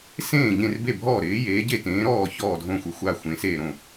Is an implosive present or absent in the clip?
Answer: absent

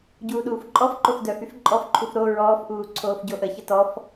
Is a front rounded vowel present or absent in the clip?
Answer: present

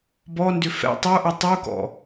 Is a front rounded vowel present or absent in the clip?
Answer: present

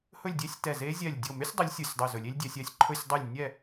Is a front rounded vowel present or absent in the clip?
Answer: present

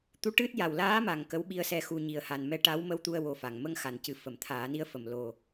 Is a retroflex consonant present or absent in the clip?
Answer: present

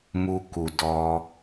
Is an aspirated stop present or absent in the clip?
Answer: absent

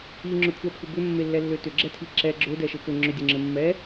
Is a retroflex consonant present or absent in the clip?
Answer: absent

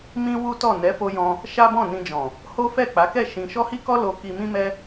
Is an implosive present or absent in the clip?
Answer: absent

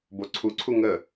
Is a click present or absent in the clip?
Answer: present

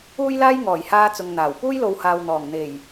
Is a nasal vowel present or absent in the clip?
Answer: absent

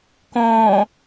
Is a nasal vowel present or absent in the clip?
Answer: present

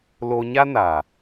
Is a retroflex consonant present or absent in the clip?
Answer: absent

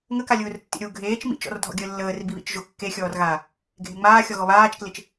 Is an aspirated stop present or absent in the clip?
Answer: absent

